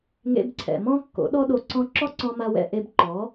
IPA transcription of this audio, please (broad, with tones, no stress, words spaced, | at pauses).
ŋḛ˧bǀʰɛ̰˨mɔ̃˦ kːo̰˨˦ɗɔ˦ ɗo˧ǀɔ̃˦ ǁɔ˦ǀɔ̃˧ma˧wɛ̰˧ ʔe˧bǃɔ˨˦